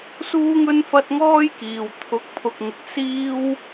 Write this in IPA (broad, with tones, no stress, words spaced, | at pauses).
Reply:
suː˥ŋɵ˥nfɐ˥t̚ ŋɔː˥jkiː˨w t̪ʰʊ˨˥k̚pʰʊ˨k̚ŋɪ˨k̚ siː˥w